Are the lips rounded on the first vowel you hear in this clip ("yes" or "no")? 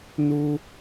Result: yes